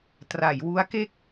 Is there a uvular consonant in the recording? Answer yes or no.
no